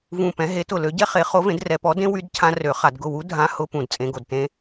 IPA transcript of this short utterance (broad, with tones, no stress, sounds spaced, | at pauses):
v ũ˧˩ p ɛ̃˨˥ ɦ e˨˥ t ʊ˧˩ l ø˨˥ ɟ ɛ˦˥ χ e˨˥ χ o˨˥ v ẽ˨˥ d r ɛ˧˩˧ p ɔ˨˥ d ẽ˦˥ w y˦˥ d cʰ ã˦˥ r ø˧˩˧ χ a˧˩˧ d ɡ ʊ˧˩ w u˨˥ dʱ ã˦˥ h ʊ˦˥ p ũ˧˩ d t͡sʼ ẽ˨˥ ɡ o˧˩˧ d t ẽ˦˥